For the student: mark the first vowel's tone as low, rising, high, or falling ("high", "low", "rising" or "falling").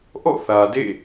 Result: falling